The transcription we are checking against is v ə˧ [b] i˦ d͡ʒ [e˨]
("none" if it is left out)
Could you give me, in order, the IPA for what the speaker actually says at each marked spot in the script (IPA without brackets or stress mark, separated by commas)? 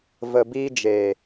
b, e˨